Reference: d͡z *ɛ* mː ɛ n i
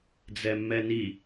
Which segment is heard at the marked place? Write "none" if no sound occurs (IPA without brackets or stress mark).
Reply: ɛ